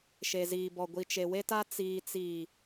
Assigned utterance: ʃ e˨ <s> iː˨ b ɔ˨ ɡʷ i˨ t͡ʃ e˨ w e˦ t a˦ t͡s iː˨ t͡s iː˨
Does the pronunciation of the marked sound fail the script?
yes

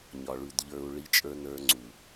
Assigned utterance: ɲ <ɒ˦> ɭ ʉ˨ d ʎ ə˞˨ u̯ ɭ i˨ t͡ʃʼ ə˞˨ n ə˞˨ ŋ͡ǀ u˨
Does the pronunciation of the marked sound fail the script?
yes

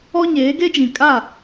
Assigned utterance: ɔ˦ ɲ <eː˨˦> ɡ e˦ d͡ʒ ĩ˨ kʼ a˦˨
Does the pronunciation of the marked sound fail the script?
no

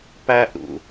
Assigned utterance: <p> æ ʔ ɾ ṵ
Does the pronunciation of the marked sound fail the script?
no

